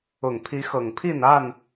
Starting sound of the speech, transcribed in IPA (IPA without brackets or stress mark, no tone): ʊ